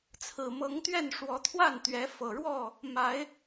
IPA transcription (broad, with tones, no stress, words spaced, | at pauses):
t͡sʰɹ̩˨˩mɤ˨˦ŋt̪ɥɛ˥˨n ʂwɔ˨˦t̪ʰwa˥˨nt̪ɥɛ˨˦ fɤ˨˩ɻwɔ˥˨ | ma˨˦ɪ̯